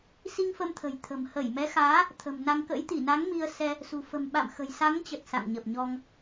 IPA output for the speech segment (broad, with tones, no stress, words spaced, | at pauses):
si˧ŋfə˧mt̪ʰə̤˨˩j t̪ʰə̤˨˩m hə˧˩jmɛ˨˦xaː˨˦ | t̪ʰə̤˨˩mna˧ŋ kə̰˧˥jt̪i˧˩na˨˦ŋ mi˧ə̯sɛ˧ | sṳ˨˩ fə̤˨˩m ɓa̰˧˨m xə̤˨˩jsa˨˦ŋt͡ɕə˨˩t̚ sa̰˧˨ŋɲə˨˩p̚ɲɔ˧ŋ